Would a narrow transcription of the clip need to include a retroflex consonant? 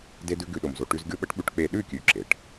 yes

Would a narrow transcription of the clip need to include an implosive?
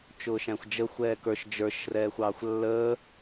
no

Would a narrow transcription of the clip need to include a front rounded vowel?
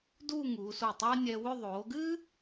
yes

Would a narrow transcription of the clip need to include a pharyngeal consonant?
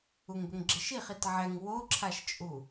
yes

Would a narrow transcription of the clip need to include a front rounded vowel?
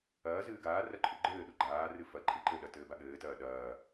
no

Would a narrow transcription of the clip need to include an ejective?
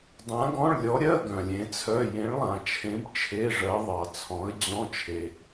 no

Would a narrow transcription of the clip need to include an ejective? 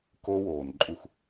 yes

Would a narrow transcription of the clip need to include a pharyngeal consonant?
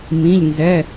no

